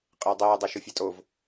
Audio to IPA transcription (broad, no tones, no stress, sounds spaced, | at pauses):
qʼ ɪː dˤ eː dˤ ɛ ʃ ʊ fʲ ɛ tʼ o v